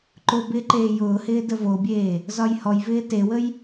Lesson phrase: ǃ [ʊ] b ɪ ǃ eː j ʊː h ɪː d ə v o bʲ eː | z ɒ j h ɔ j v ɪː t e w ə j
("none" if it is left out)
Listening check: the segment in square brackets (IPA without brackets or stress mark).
ʊ